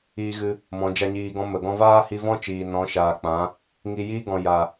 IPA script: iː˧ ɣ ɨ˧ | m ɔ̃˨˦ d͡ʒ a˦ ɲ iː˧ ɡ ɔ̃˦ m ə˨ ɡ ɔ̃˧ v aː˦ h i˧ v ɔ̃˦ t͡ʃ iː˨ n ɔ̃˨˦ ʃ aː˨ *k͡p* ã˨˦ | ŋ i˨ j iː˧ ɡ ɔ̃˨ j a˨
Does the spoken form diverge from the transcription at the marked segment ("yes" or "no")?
no